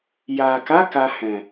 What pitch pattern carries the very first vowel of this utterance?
low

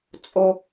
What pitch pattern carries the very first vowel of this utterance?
high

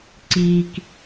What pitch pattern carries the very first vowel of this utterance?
low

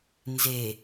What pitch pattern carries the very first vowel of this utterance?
low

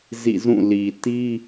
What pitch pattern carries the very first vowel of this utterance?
falling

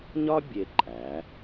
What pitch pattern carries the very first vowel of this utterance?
high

